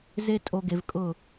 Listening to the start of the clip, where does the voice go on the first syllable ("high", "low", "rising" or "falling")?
high